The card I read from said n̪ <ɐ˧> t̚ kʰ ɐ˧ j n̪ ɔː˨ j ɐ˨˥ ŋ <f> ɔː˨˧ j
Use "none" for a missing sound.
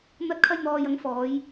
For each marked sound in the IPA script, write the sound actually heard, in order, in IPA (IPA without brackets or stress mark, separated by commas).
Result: ɐ˧, f